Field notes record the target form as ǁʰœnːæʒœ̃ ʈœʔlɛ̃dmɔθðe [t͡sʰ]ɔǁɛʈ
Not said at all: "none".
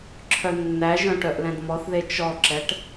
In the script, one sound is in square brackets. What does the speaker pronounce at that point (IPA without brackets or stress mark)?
t͡ʃ